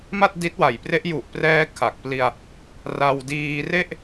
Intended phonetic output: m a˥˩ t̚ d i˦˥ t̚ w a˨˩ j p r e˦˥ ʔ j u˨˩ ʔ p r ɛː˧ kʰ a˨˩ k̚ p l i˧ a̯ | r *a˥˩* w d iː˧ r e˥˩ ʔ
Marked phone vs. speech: incorrect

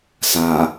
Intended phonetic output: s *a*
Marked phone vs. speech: correct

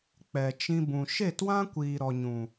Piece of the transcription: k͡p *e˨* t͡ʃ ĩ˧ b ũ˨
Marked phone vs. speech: incorrect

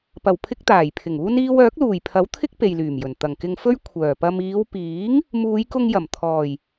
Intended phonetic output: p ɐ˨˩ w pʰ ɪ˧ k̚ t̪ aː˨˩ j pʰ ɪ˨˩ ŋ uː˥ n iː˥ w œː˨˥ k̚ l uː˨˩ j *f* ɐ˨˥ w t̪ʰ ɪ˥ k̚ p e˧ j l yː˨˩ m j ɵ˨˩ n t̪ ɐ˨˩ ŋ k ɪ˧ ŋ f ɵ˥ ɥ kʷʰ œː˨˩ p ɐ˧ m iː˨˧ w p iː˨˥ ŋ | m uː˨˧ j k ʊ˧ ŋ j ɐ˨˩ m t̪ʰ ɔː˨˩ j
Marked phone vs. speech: incorrect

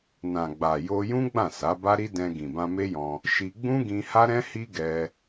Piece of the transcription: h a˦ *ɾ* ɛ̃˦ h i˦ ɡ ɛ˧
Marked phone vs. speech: correct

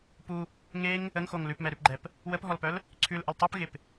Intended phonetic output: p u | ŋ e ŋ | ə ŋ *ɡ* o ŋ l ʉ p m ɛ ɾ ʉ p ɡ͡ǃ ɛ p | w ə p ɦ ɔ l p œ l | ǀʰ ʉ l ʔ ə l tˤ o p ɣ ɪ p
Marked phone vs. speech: incorrect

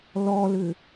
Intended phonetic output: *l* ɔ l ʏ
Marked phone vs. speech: correct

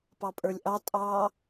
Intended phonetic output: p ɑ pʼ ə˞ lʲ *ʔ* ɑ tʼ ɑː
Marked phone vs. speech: correct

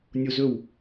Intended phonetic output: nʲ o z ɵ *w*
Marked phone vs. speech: correct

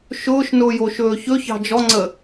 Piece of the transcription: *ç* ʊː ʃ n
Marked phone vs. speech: incorrect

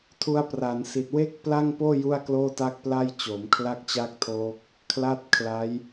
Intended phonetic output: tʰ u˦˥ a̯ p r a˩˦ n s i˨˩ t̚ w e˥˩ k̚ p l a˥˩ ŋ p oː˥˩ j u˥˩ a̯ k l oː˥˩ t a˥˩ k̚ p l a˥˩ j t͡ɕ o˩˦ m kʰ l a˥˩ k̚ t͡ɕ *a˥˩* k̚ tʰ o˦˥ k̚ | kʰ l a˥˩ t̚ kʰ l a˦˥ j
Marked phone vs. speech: correct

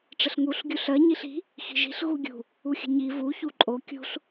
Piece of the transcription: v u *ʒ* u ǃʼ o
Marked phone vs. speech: incorrect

